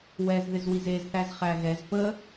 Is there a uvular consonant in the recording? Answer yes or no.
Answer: yes